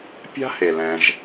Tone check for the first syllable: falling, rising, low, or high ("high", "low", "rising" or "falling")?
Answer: high